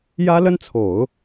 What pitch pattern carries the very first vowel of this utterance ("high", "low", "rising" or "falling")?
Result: high